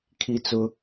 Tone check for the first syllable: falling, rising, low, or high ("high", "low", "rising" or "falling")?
high